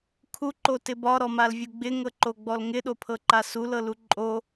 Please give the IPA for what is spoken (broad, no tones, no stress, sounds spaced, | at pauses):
kʰ u ǃ o t ɪ b ɒ ɾ ɔ m a l vʲ u ɡ͡b ɪ ŋ ɤ ǃ o ɡ͡b ɔ l ŋ ɪ ɗ o pʰ ɤ ǃ a s u l ɤ l u ǃʼ o